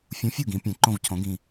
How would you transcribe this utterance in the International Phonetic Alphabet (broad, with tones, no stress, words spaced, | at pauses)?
fʲũ˨˥fʲu˥˩ɡĩ˩˧ pʲɛ̃˩˧ǃõ˧˩vcʰõ˩˧ ɡĩ˩